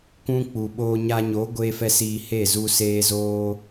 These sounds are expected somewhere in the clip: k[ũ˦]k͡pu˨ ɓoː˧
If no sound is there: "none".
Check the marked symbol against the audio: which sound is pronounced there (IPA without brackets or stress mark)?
ũ˦